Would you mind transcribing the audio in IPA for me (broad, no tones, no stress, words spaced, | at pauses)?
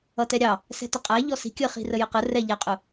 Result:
ʌtɛɾʲɑ | sɛ̤tʌqʼæ ʎɔsi̤ kʲəχi̤ rəjəqə rɛʎæqʼʊ